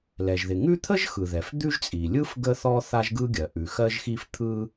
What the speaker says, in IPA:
lɛ˩ʒðɪ˩ŋʉ˥ t̪ʰə˥ʒxɯ˩ðɛ˩f d̪ʉ˥ʒt͡sʼi˩ lʲɯ˥f ɡə˥ θɔ˥θa˥ʒɡɯ˥ɡʲɜ˩ ʔʉ˩xɜ˥ʒ xi˥ft̪ʰɯ˥

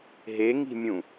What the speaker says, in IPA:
ɦeŋi̤mʲũ

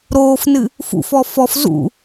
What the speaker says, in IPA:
ɾoːfnɨ | fṵfɔ fɔf zṵ

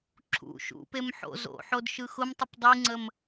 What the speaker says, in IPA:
ǁʰṵ ʃṵpem ħo̰ zo̰ħod ʃɯxʊmtˤəp dˤiŋ͡ǀəm

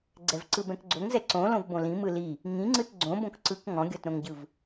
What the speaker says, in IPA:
ɡ͡ǀɛvǀɯbɛ̃kɡ͡ǀoŋ zɛǀõ lõvbõlĩ mɯli | ŋĩŋ͡ǀɯt ɡ͡ǀõbõk ǀɯk ŋɔ̃ɡʲɔtɾõŋɟɯv

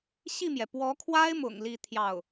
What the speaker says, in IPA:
ɕi˥˩mjɛ˩ pwɔ˧˥kʰwa˥ɪ̯mʊ̰˨˩ŋ li˥˧t̪ʰjɑ˥˩ʊ̯

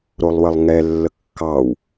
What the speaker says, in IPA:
ɾolˠwəlˠŋɛlːə kːɑw

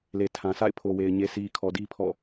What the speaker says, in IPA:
le˨tʰã˨sʰa̰˦˨ɪ̯ pʰo˨we˨ɪ̯ ɲe˨sʰi˨ kʰɔ˨di˦ pʰɔ̰˦˨

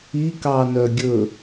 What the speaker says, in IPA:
ikɑ nœɡʲɵ

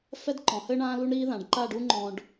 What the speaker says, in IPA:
fɛ˥dǃɔ̃˩˧hɘː˥ ɳãː˥lu˥ɳɾiː˥ ðã˩˧ɖ ǃa˥˧ɖu˥ŋ͡ǃɔ̃˧ɖ

